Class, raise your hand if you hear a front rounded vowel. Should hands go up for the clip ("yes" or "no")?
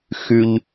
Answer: yes